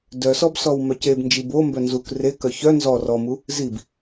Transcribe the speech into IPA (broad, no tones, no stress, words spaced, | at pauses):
dœsɔbsɔw mœcebnd͡ʒib o mbœnzuk rekœ çœ nzɔ rɔmu | zib